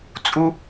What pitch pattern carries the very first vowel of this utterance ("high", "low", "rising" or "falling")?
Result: high